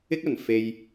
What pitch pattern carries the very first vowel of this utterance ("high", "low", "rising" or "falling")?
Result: high